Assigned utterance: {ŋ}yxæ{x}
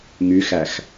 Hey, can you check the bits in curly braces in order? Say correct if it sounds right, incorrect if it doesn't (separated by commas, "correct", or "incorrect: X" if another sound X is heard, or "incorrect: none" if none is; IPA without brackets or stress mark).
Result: correct, correct